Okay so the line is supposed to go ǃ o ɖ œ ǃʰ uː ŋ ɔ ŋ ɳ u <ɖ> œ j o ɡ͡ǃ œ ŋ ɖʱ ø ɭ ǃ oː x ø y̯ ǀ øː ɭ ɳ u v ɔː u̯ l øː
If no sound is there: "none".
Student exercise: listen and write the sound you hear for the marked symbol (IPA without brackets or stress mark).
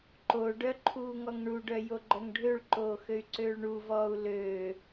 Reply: ɖ